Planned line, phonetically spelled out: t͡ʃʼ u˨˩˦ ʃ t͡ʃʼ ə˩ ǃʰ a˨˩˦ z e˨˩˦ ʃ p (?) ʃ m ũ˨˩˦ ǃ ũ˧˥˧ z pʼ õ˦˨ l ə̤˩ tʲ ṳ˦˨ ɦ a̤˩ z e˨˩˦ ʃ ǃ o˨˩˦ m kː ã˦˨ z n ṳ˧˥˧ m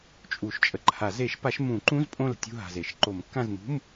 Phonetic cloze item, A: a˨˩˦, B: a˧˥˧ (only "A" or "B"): A